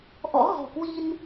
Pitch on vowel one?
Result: rising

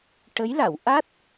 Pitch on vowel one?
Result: rising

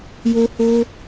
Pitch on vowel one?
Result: high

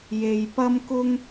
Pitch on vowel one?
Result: low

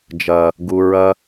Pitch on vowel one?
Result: low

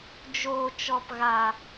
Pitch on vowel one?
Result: low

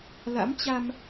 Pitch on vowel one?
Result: rising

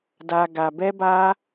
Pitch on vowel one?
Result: low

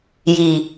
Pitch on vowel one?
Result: low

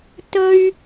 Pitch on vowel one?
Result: high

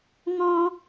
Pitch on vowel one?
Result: high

